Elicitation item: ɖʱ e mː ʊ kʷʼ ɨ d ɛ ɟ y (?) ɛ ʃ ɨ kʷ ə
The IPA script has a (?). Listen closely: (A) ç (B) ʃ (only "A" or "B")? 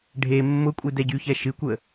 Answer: A